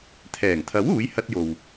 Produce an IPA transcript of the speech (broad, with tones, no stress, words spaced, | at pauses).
t̪ʰɛː˨˩ŋt̪ʰɐ˨˥w uː˨˥j hɐ˧t̚jo˨w